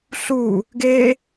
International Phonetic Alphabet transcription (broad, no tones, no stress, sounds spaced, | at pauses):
ɬ u | ɡ e